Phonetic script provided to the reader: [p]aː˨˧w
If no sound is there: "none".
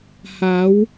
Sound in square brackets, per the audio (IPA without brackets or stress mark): h